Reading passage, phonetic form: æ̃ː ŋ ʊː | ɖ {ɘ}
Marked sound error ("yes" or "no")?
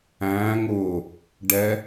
yes